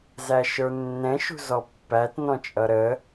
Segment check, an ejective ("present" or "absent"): present